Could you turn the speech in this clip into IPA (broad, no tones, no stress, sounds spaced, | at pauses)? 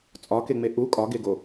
t͡sʼ ɒ k e ŋ͡m e ʔ u kʼ ɒ ɡ e ɡ o